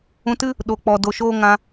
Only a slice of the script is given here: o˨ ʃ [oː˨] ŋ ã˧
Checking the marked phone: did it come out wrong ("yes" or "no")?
yes